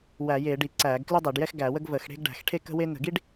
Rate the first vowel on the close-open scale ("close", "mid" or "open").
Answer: open